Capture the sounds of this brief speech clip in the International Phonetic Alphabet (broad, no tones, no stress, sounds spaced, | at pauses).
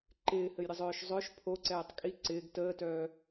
ǃ ɪː h ɘ j ɾʲ ə zˤ œː ʃ zˤ œ ʃ pʰ o ǀ ɛː tˤ kʼ i ǀ ɪː ɡ t əː t œː